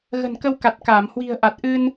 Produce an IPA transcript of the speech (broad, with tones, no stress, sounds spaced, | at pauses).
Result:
ɣ ə̤˨˩ n k ə˧ w k a˨˩ t̚ k aː˧˩ m h w i̤˨˩ ə̯ ʔ a˨˩ t̚ ʔ ɨ˧ n